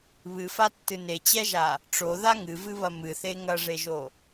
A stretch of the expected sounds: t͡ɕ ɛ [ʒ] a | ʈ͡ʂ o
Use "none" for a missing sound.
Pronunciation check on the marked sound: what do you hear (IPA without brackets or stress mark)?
ʒ